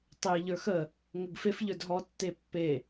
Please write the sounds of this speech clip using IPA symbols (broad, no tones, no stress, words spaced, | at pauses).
tˤe ʎə˞xə | ŋəɡfef ʎə˞dɦɔ tːepːe